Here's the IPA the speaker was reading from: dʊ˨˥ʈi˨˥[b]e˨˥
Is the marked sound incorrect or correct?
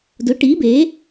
correct